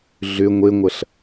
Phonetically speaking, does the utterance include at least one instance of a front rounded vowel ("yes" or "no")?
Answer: yes